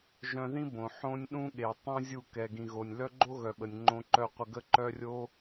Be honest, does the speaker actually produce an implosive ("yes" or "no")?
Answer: yes